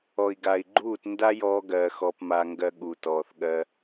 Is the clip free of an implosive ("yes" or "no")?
no